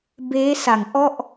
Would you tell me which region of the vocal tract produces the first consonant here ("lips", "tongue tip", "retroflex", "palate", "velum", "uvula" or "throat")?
lips